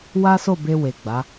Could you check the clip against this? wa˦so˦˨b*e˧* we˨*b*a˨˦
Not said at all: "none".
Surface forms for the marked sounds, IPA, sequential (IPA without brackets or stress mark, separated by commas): e˧, ɡ͡b